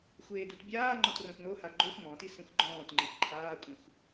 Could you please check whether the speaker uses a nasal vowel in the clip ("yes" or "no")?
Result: yes